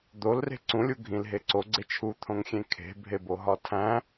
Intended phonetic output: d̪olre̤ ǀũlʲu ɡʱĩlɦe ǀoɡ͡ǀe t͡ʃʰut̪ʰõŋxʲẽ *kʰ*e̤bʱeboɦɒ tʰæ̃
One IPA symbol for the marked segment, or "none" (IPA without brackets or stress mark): kʰ